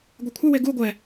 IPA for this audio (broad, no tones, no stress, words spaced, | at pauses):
ɡʷekʷʰəwe ɡu ɡʷɛ